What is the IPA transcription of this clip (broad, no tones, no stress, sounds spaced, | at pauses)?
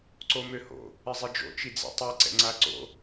ǀ o m ø h o̰ | ɪ zˤ i d͡ʒ o̰ t͡ʃ i d͡z ḭ tˤ i ǀ ɛ̰ ŋ͡ǀ a ǀ o̰